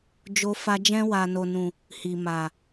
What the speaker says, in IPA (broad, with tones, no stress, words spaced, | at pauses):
d͡ʒo˧fa˧ d͡ʒɛ̃˧wa˨no˨nũ˨ | hi˨ma˨